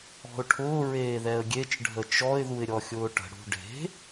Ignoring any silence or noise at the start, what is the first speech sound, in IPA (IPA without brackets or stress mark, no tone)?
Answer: ɔ̤